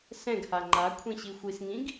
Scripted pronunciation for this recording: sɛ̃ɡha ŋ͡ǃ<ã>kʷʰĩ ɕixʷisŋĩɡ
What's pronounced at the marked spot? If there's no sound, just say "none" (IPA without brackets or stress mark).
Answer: a